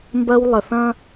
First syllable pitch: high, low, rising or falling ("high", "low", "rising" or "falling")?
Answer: high